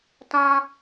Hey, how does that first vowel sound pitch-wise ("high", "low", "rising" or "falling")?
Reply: high